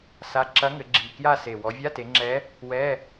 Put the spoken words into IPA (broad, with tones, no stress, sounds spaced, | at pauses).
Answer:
s a˧˥˧ ǁ ɐ˧˥ ŋ ɘ˩˧ ɡ͡ǁ i˨˩ k j a˥˧ s e˨˩ w ɔ˩˧ vʲ a˧˥˧ t e˩˧ ŋ͡ǁ ɛ˧˥ | w ɛ˧˥˧